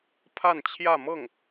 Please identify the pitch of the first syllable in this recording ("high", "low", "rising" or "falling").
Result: falling